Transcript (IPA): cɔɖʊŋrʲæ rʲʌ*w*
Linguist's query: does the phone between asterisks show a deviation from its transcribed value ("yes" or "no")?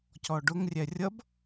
yes